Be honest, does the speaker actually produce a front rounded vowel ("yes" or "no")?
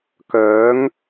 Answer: yes